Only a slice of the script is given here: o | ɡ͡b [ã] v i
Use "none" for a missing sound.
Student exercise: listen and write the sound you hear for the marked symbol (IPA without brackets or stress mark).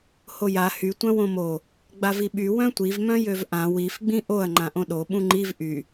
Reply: a